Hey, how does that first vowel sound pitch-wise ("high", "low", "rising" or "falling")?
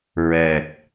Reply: low